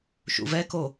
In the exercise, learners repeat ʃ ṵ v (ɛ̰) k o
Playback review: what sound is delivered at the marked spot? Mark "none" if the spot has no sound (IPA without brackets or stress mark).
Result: ɛ